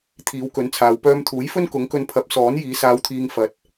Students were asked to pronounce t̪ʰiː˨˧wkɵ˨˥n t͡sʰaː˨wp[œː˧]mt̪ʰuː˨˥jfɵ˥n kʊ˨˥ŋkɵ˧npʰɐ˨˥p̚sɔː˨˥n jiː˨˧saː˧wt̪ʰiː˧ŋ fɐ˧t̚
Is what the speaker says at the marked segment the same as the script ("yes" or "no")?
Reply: yes